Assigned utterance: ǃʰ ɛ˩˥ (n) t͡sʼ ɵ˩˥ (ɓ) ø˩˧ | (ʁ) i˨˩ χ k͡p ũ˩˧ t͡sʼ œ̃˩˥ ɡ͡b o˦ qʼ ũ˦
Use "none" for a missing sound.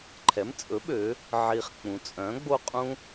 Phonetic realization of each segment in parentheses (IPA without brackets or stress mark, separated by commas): m, ɓ, ʕ